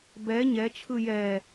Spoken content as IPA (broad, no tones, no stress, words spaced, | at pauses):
bɛ ɲɛt͡ʃʰɯ jɛ